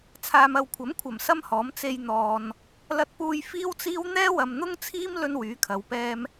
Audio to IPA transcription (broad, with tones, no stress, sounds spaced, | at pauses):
t͡sʰ aː˨ m ɐ˨ w kʷʰ ɐ˨˥ m kʷʰ ɐ˨˩ m s ɐ˥ m h ɔː˨˥ m t͡s e˧ j n̪ ɔː˨ n | l ɐ˧ t̚ p uː˧ j f iː˥ w t͡s iː˥ w n̪ ɛː˥ w ɐ˨ m n̪ ʊ˥ ŋ t͡sʰ iː˥ m l ɵ˥ n w yː˨˥ kʰ ɐ˨˧ w p ɛː˥ m